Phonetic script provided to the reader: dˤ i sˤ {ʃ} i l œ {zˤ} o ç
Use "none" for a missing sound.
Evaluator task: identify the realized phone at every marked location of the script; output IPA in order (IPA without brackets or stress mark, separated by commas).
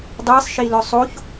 ʃ, sˤ